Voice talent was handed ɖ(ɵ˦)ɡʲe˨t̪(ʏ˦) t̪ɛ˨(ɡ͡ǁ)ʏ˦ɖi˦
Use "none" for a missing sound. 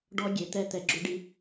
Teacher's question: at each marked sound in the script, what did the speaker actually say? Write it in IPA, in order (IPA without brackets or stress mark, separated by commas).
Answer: ɔ˦, ɛ˦, ɡ͡ǁ